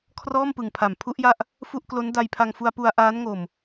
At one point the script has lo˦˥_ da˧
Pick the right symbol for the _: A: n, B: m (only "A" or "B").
A